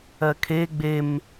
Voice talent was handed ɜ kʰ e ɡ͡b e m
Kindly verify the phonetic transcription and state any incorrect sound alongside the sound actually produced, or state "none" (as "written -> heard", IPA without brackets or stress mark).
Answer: none